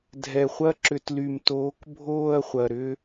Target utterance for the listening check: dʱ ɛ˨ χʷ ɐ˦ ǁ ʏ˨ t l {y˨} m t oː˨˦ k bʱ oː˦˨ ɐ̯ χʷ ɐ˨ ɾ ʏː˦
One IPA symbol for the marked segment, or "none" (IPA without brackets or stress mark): y˨